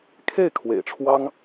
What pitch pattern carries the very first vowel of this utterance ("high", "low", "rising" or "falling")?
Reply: falling